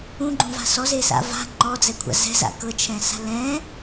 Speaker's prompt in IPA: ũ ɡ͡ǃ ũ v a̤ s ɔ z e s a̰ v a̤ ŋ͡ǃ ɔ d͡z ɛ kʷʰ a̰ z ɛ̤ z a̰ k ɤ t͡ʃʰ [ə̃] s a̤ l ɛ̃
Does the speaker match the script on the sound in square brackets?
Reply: no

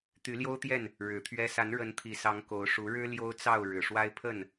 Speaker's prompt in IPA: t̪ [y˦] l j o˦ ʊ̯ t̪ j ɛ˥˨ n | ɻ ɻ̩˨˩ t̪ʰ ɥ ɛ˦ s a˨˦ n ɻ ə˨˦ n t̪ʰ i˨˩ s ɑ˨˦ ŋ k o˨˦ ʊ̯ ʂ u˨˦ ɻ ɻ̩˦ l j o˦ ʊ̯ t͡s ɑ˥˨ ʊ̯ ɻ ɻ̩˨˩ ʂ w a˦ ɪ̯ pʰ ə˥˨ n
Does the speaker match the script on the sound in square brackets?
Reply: no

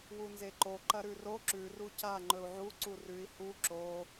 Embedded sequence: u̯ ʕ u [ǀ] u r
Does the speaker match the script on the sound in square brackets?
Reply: yes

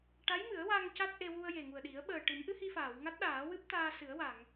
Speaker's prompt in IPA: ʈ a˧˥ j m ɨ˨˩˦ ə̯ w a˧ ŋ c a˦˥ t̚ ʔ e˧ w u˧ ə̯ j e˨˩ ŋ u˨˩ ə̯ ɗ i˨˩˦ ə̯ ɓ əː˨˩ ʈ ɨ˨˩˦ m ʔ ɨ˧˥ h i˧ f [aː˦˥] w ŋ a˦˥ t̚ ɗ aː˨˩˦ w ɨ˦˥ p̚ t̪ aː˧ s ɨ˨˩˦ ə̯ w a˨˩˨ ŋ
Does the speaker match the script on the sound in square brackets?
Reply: no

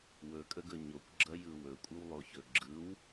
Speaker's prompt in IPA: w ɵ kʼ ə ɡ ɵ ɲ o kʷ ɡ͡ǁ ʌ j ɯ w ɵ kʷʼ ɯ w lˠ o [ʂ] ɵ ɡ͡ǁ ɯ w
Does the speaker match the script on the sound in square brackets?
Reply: no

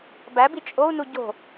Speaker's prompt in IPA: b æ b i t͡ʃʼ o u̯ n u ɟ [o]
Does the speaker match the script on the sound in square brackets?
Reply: no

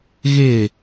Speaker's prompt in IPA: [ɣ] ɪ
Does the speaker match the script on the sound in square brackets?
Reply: yes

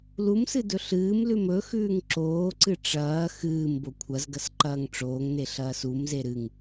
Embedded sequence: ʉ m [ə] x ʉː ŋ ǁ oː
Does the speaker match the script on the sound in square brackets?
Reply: no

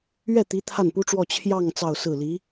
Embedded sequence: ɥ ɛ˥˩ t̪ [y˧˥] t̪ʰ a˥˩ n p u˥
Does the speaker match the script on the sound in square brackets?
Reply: no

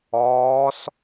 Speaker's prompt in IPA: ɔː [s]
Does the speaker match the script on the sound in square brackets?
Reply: yes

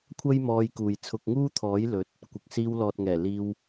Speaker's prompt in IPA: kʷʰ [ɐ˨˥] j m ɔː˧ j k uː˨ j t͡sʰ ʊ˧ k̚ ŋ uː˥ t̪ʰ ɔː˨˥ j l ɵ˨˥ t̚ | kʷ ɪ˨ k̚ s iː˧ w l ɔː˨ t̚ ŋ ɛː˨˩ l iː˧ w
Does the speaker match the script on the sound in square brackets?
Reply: no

